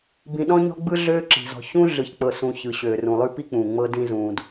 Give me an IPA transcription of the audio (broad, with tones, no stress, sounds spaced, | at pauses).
b ĩ˨ ɗ ɔ̃˥ ɲ ɔ̤˥ ɡ͡b ɯ˥ ɮ øː˥ ǁ i̤˩ z ɔ̤˨ ç ũ˥ ɮ ɯ˨ ç k͡p ɤ˨ s ũ˨ ç ɯ˩ ɕ øː˩ r ũ˩ lˠ ʉ˦ p i˥ k͡p ũː˩ ŋ͡m ɤ˦ d ĩ˦ z ũː˨ d